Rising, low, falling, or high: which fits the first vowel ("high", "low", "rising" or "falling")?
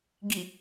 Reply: low